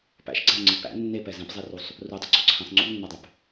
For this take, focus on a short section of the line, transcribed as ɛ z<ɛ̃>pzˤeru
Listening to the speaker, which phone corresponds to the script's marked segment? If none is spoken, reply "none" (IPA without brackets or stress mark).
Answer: ɛ̃